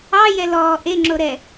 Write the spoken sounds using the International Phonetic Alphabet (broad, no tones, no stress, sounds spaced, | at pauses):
ɑ j ɛ l ɔː ʔ e ŋ͡ǁ o ɾ ɛ